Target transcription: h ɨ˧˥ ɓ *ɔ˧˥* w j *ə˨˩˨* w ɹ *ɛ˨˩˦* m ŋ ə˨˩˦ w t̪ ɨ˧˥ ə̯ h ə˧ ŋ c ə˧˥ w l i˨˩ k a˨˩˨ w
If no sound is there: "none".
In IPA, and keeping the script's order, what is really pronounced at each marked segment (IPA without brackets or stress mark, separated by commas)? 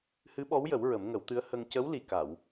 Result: ɔ˧˥, ə˨˩˦, ə˨˩˦